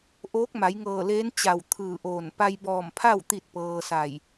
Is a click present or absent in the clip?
absent